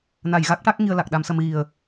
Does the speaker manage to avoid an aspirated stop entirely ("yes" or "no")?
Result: yes